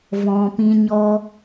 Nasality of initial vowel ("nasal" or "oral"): nasal